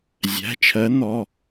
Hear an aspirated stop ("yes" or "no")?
yes